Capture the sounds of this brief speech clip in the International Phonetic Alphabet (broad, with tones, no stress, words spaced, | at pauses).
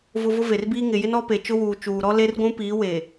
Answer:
vʊ˨ vʊ˦ve˨rbiː˦ ŋɪ˨jɪ˦n ɔ˦pe˨ t͡ʃʊ˦wuː˨ t͡ʃuː˨ɾɔ˦ le˦rɡʷũ˦ piː˨˦we˨